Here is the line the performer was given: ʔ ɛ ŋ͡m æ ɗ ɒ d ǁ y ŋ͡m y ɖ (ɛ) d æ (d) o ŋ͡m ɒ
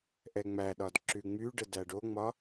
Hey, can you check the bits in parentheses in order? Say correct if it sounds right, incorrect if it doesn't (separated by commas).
incorrect, incorrect